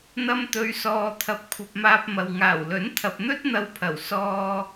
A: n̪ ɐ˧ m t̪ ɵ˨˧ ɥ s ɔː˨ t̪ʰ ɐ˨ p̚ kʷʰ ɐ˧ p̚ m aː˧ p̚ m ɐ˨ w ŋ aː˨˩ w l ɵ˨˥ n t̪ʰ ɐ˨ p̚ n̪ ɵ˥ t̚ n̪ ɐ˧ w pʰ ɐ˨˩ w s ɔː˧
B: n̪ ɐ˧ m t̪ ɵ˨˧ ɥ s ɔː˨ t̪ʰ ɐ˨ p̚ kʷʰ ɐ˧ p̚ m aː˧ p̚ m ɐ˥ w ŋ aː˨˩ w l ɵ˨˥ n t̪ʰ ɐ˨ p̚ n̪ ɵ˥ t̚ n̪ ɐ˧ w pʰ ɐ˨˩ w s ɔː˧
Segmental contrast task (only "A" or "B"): A